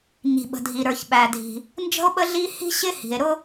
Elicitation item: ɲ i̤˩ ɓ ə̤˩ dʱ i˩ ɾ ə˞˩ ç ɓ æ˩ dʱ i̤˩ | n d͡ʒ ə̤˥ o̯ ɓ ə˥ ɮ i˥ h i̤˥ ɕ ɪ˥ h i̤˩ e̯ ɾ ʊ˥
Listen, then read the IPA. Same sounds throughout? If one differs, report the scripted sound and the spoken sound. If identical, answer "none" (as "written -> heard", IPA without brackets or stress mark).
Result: none